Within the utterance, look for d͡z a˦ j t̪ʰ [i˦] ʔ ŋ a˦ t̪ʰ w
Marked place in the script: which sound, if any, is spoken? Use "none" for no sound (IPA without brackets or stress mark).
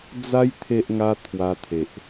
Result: e˦